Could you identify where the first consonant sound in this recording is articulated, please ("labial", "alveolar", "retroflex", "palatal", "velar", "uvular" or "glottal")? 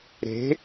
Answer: alveolar